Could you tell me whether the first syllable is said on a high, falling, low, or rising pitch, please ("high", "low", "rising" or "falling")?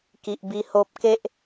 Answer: low